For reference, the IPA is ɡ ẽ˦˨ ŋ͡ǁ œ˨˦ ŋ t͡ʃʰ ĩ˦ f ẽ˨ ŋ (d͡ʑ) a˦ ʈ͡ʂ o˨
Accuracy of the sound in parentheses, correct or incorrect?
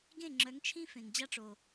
correct